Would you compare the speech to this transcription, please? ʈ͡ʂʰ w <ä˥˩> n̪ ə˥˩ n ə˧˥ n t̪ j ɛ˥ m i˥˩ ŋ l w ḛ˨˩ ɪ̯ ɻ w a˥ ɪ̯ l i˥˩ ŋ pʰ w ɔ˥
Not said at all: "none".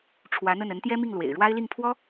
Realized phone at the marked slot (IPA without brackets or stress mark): ä˧˥